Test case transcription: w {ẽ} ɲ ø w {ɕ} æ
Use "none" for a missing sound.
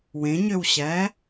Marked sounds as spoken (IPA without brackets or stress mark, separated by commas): ẽ, ɕ